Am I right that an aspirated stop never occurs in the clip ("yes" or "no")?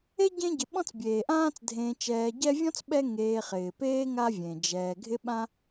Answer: yes